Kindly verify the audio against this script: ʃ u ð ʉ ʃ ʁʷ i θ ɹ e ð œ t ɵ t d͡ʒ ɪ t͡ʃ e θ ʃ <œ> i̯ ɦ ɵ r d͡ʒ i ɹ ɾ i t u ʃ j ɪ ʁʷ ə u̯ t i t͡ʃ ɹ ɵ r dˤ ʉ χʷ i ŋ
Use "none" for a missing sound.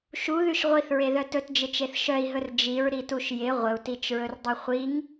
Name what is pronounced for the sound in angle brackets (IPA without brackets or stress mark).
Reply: œ